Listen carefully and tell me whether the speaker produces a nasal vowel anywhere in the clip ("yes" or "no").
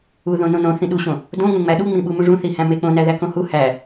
yes